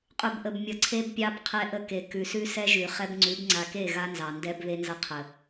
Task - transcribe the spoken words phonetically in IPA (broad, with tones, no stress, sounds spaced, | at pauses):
qʼ ʉ˨ b ʔ ə˨ b mʲ ʌ˨ ǀʰ e˦ b pʲ ɑ˦ b qʰ ɛ˦ ʔ ə˦ k e˨ k ʉ˨ s ʉ˦ s ɛ˦ ʒ ʉ˨ χ ɛ˦ b ŋ͡ǀ ʉ˨˦ b ŋ͡ǀ a˨ k e˦˨ ɣ a˦ n z ɑ˨ n d ɛ˦ b β e˦ n z ʌ˦ qʰ ə˨